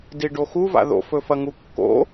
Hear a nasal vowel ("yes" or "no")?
no